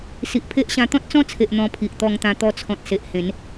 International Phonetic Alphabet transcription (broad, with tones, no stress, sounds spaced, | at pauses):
s i˨ ʔ pʰ e˦ ʔ ɕ ã˧ t̪ ɔ̃˦ t̚ t͡s ɔ̃˦ t͡sʰ e˨ ʔ n̪ ɔ̃˧ pʰ i˨ ʔ t̪ ɔ˧ ŋ t̪ ã˧ t̪ ɔ˧ t͡sʰ ɔ̃˨ t̚ s e˨ ʔ h ẽ˨˦ n